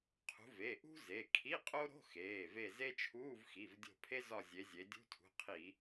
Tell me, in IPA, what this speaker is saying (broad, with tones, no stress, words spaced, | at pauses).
qʰṳ˨˦ve˩˧˩ ʔṳ˥ze˩˧˩ kʰi˧˥˧qʼo˥ɾo̤˧˥˧ xeː˩˧˩ve˦˨ze˥ t͡ʃʰuː˧˥˧v xi˩˧˩v dʲo̤˦˨pʰe˥ zɒ˦˨zʲe˨˦zʲe˨˦ dʲṳ˧˥˧tʰṳ˩˧˩qʰi˧˩˧